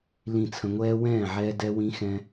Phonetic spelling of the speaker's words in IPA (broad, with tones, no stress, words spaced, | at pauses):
lĩ˥˨t͡sʰə̃˦ ŋʷɛː˦wɛ̃ː˥˨ʕɛː˦ dɛ˦wĩ˦ xɛ̃˦